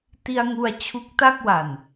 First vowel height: high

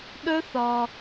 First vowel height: mid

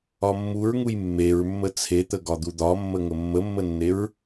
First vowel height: low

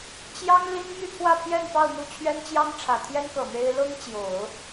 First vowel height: low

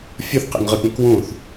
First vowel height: high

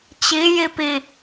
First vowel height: high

